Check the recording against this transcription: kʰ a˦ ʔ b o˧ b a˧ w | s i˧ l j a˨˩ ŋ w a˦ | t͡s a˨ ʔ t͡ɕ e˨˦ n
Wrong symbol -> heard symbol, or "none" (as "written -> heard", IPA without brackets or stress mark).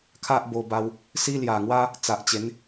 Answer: i˧ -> i˦